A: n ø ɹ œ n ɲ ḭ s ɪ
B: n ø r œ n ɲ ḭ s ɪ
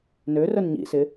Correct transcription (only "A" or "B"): B